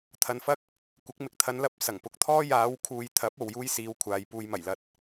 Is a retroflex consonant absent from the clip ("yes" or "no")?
yes